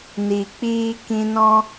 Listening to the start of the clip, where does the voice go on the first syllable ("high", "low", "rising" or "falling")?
low